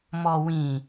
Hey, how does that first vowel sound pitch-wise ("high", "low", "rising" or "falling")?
low